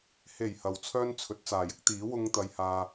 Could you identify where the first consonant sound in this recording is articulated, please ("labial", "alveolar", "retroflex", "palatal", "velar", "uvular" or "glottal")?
glottal